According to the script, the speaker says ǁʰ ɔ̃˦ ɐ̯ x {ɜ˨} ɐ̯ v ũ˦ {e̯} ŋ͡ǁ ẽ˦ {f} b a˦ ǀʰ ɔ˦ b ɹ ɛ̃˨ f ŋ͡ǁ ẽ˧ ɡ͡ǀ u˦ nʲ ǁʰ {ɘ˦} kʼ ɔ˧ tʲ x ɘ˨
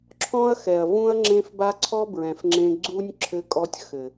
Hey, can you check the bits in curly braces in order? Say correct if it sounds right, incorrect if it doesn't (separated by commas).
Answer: incorrect, incorrect, correct, incorrect